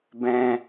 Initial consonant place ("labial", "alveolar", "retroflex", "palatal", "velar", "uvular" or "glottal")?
labial